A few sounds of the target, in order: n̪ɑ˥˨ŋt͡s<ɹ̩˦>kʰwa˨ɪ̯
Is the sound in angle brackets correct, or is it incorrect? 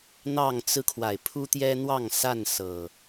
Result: correct